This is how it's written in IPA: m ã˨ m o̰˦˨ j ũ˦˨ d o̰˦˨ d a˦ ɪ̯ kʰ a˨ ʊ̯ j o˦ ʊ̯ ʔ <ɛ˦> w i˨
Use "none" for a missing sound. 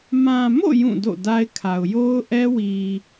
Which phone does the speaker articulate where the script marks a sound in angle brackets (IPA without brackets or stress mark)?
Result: ɛ˦